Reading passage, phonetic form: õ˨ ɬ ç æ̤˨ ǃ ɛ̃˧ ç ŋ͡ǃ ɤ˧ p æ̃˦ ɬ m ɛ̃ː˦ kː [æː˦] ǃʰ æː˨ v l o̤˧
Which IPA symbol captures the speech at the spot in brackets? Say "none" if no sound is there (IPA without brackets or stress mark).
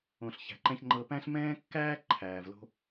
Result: æː˦